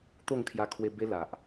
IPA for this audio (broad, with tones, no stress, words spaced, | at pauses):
t̪o˥˧ŋkʰja˧ kʰwe˧ be˦la˨ʔ